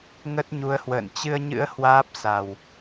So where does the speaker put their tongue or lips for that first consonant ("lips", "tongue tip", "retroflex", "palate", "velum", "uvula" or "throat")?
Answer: velum